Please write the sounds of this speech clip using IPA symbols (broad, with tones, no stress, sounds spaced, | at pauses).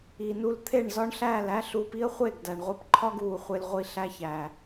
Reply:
i˨ n u˧ l t̪ʰ e˦˨ ɳ z ɒ˦ ɳ ɬ æː˦˨ l æ˦ ɬ uː˧ p i˦ ə̯ χʷ e˦˨ ɡ d æ˨ ɳ ʁʷ i˦ p ǃʰ ɒ˦ ɡ uː˨ χʷ e˧ l ʁʷ i˧ ɬ æ˦ ç æː˨